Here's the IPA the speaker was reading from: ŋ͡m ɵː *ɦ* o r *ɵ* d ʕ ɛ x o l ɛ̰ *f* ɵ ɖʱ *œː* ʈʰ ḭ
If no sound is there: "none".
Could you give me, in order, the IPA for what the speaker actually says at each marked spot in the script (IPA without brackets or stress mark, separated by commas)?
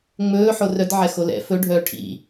ħ, œ, f, œː